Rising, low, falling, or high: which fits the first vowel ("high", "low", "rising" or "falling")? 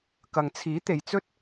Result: low